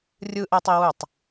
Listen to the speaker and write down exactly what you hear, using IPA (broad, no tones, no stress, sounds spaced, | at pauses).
rʲ ɯ ʔ ɛ tˤ i w u tˤ